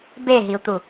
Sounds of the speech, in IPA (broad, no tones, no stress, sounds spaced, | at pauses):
b e ɦ i u̯ t̪ u